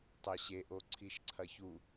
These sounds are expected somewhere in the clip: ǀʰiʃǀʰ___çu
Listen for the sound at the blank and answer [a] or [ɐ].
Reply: ɐ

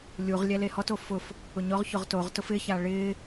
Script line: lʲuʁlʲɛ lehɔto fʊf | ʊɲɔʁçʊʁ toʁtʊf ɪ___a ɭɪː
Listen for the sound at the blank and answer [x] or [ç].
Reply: ç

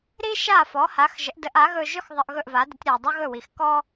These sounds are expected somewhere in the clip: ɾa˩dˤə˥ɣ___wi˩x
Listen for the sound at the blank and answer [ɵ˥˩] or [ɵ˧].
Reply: ɵ˥˩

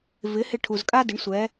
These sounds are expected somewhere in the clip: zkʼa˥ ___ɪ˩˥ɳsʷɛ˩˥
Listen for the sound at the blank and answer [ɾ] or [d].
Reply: d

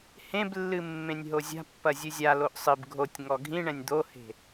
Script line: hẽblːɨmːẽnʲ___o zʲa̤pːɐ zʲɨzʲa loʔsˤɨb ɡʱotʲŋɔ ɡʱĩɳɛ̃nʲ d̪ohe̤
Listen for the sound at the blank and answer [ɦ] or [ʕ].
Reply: ɦ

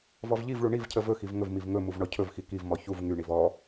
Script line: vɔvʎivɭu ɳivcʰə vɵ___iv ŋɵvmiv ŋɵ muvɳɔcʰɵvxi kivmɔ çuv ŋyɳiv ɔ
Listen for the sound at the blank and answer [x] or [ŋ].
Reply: x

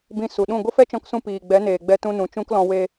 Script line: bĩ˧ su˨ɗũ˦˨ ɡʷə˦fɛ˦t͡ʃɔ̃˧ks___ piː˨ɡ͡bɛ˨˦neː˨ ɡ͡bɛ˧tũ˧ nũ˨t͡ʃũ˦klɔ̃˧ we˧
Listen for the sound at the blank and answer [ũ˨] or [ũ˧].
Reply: ũ˧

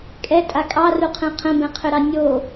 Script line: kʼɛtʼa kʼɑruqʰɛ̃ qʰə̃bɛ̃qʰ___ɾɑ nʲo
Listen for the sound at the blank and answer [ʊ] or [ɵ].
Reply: ɵ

